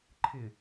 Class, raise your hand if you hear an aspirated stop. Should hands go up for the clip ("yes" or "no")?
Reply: yes